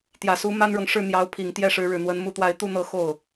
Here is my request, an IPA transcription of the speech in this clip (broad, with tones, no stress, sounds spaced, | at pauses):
t̪ j ä˨˩ s u˧˥ m a˥ n ɻ ɤ˨ ŋ ʂ ɻ̩˥˩ n̪ j ɑ˧˥ ʊ̯ pʰ i˨˩ ŋ t̪ j ɛ˥˩ ʂ ɻ̩˧˥ ɻ ɻ̩˨˩ n̪ w ə˧˥ n m u˧˥ t̪ w a˧˥ ɪ̯ t̪ u˥˧ n̪ ɤ˥˧ x o˥˩ ʊ̯